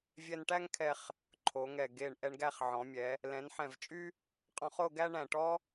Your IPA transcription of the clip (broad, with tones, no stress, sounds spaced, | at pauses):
vʲ ɛ˧ n ʈ æ˥ ŋ kʰ ɛ˧ χ | ǃʰ o˩˧ ŋ ɛ˧˩ ɡ e˧˩ ɳ ʔ ɛ˧ ɳ ɡ æ˥˧ χ ʕ ɔ̃˩˧ mʲ ɛ˩˧ | l ɛ̃˩˧ n ħ ɛ̃˧˩ v t͡ʃʼ y˥ | qʼ ɔ̃˧ χ o˥˧ ɡ æ˥ ɳ æ̃˧˩ ʈ ɔ˥